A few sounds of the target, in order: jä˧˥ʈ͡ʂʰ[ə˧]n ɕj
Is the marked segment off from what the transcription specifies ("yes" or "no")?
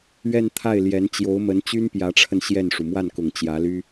no